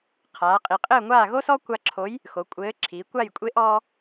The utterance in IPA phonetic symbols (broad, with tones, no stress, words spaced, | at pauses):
qʰaː˩˧qʼi˩˧qʼɘː˥˨ŋʷaː˥˨ ɣo˥sɔ˥ kʷa˧ǁʰo˨˥j | xo˩˧kʷʼɘː˨˥ ǁʰiː˩˧kʷa˥˨j kʷʼe˨˥ʔɔː˧